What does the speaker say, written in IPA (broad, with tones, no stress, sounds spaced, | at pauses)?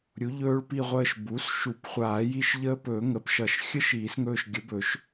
ɾʲ u˩˥ ʎ ɵː˦˥ ɭ p i˦˨ ʁʷ əː˦˨ ʃ b u˩˥ s ʃ u˨˩˦ p χʷ aː˨˩˦ j i˦˨ ʃ ʎ əː˦˥ p ɵː˨˩˦ ŋ ə˩˧˩ p ʃ ʌ˨˩˦ ʃ xʲ ə˦˥ ʃ iː˨˩˦ s ŋ ɵː˦˨ ʃ ɡʲ ə˩˥ b ɵ˨˩˦ ʃ